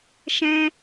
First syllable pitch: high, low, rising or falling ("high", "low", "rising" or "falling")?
high